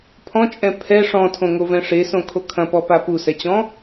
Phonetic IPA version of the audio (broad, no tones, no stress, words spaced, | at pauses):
pʰɔ̃t͡ʃʼɛ̃ pʰɛ ʂɔ̃tʰõŋovɛ̃ ʂesõkʰo kʰɐ̃pɔpa pusɛt͡ɕɔ̃